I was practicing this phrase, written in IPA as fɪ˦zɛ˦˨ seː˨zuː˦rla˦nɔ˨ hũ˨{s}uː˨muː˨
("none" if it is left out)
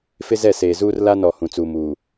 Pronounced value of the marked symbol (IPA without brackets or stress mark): t͡s